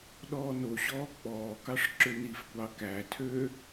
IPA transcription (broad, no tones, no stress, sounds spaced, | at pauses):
ɗ ɔː n o ɕ ɔː k͡p ɔː k ɑ ʂ ǁ ʏ n i f kʷ ɑ k æ tʰ ø